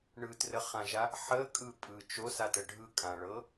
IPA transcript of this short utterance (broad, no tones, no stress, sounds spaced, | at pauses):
ɳ ɯ t r ə χ ã ʒ a | ħ ə kʼ ɯ pʼ ɯ t͡ʃ o s a t ə ɖʱ ɯ kʼ ã ɭ ɤ